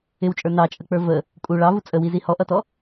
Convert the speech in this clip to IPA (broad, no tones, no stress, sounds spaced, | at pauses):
ɪ w t͡ʃʼ ə˞ n ɑ t͡ʃʼ ə k͡p ə˞ v ə | kʼ u ɭ ɑ v u t͡sʼ ə w i z i h ɔ ʔ ʌ t ɔ